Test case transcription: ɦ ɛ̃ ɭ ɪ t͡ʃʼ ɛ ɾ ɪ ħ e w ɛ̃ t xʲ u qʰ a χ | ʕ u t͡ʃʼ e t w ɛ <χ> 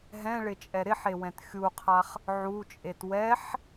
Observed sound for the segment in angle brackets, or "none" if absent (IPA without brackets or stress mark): ħ